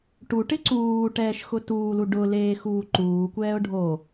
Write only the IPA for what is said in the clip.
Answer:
ʈ u ʈ ɪ ǀ uː ʈ ɛː ʃ x ʊ t uː l u ɖ ʊ l eː x uː ǃ uː kʷ ɛː ʊ̯ ɖʱ o

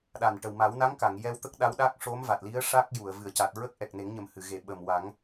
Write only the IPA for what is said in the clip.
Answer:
ɗ a˨˩ n ʈ ə˨˩ w m a˨˩˦ w n a˧˥ ŋ k a˨˩˨ ŋ j ɛ˧ w t̪ ə˦˥ k̚ ɗ a˧˥ w ɗ a˦˥ k̚ ʂ o˧˥ m v a˨˩ t̚ l i˧˥ ə̯ ʂ a˦˥ k̚ j u˨˩˨ ə̯ v ɨ˨˩˨ ə̯ c a˨˩ t̚ ɹ ə˦˥ k̚ ʔ ɛ˨˩ k̚ n e˨˩˦ ŋ ɲ ə˨˩ m h ɨ˨˩˨ ɣ e˨˩˨ ɓ əː˨˩ m w a˨˩˦ ŋ

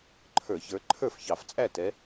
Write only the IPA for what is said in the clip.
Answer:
ǃʰ ə˞˧˩˧ ç ə˞˨˦ ǃʰ ə˞˥˨ f ç ɑ˧˩˧ f t͡sʼ æ˥˨ t ɛ˨˦

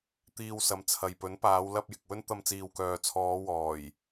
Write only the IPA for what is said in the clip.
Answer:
t̪ iː˧ w s ɐ˨˧ m t͡sʰ ɐ˨ j p ɵ˨˥ n p aː˨˧ w l ɐ˧ p̚ j ɪ˨ k̚ w ɵ˥ n t̪ ɐ˧ m t͡s iː˨ w k œː˨ t͡sʰ ɔː˨˧ w ɔː˨˩ j

